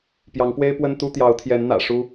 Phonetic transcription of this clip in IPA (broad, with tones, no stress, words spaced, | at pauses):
pjɑ˨˦ŋpwe˦ɪ̯ pwə˦nt̪u˦ t̪jɑ˨˦ʊ̯t̪ʰjɛ˨˦nn̪ä̰˨˩ ʂu˦